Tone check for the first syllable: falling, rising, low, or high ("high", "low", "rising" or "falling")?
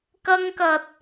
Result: high